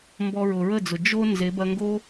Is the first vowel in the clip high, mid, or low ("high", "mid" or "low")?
mid